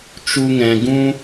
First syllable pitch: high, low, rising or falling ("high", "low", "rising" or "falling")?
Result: high